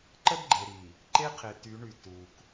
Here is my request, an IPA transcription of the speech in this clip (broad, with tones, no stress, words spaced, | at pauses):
ǃə˦dɡ͡ǃe˨ɾi˨ | ǃe˦qʰe˨ty˨˦ɳy˨ tu˨k